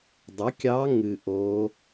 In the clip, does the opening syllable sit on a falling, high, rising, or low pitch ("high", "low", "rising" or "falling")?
rising